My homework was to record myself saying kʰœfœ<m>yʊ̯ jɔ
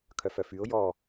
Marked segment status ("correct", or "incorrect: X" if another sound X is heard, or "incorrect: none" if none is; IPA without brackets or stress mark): incorrect: f